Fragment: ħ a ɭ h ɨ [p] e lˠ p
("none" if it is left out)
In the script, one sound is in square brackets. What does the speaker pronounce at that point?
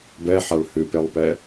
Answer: p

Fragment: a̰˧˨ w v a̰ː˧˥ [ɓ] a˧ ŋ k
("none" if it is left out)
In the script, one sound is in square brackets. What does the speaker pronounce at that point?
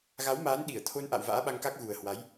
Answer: ɓ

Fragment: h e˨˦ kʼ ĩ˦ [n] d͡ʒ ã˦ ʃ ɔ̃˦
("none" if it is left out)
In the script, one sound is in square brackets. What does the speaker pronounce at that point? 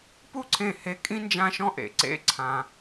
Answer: n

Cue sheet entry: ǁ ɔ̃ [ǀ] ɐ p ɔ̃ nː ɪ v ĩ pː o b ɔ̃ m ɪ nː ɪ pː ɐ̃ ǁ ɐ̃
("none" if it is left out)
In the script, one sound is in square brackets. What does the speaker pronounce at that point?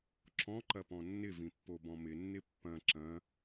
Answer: ǃ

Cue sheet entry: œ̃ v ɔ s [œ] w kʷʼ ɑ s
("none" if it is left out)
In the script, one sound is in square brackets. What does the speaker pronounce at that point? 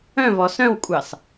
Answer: œ̃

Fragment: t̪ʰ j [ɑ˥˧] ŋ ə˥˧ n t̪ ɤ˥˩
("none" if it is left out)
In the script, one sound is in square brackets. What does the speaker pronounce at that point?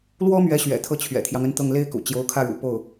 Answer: ɑ˦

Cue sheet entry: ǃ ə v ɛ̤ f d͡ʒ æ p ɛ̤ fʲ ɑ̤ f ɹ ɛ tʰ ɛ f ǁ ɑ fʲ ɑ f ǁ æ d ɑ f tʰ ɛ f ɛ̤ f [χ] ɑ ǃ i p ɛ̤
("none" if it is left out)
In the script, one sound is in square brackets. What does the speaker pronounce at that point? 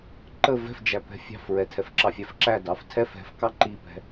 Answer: k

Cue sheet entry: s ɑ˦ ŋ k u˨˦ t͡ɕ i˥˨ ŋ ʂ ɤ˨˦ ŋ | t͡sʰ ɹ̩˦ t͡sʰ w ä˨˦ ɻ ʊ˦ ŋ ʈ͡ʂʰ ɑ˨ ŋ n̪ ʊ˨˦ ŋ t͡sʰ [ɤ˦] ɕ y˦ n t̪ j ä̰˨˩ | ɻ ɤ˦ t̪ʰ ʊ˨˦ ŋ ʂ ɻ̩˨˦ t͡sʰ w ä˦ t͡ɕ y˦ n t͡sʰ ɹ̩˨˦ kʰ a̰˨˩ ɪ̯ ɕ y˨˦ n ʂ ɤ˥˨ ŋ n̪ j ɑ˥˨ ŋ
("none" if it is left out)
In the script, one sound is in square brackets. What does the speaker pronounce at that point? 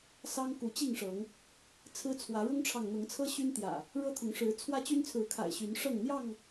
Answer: ɤ˦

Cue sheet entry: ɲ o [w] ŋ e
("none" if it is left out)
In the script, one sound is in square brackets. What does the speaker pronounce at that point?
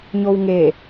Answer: w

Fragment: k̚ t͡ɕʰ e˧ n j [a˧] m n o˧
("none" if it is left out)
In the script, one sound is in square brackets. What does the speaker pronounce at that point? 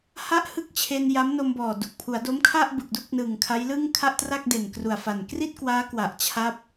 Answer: a˦˥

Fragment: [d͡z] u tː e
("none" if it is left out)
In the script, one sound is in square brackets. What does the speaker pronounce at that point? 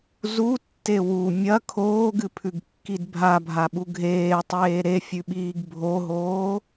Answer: z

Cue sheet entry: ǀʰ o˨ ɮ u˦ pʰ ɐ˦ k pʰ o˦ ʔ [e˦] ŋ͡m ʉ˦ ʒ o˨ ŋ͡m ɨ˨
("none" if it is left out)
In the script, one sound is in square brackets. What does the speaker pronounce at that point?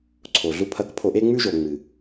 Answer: e˦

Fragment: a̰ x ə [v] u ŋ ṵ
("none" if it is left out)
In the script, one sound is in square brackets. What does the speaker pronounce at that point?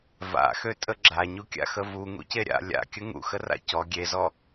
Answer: v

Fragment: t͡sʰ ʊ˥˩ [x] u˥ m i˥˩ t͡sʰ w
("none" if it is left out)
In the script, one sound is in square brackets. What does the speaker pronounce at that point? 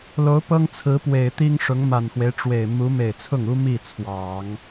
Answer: ŋ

